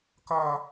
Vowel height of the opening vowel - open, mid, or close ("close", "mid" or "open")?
open